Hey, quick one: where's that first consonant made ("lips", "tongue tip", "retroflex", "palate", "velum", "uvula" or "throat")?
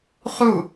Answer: uvula